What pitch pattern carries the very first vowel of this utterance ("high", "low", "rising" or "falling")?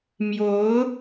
rising